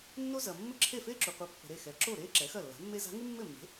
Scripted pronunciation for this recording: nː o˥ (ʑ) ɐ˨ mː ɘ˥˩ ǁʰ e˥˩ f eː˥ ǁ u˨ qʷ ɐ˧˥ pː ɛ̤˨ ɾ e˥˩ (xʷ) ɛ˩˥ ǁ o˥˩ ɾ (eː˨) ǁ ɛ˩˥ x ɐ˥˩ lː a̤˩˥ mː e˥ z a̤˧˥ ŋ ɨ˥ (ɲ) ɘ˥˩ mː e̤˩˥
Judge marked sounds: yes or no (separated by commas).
no, no, no, no